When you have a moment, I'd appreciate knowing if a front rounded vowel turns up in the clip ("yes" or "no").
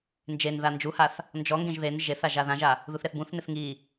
no